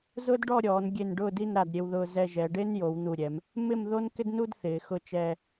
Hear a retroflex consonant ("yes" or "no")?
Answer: yes